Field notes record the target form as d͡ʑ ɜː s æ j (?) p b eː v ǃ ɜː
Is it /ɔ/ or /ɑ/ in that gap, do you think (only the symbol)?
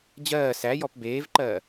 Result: ɔ